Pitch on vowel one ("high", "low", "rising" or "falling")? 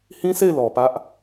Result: high